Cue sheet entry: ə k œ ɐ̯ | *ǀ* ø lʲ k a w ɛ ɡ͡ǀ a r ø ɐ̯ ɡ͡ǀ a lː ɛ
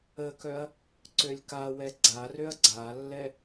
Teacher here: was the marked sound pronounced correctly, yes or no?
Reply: yes